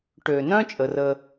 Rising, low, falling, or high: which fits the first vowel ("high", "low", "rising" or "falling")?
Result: low